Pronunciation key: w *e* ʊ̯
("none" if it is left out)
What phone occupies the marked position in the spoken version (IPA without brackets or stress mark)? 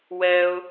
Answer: ɛ